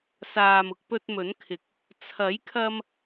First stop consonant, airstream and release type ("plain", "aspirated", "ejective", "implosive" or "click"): plain